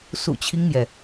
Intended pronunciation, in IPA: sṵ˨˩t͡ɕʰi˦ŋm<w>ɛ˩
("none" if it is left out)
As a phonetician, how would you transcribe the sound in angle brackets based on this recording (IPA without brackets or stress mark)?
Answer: j